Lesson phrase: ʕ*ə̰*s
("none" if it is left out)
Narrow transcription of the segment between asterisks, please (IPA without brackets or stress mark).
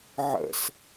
ə̰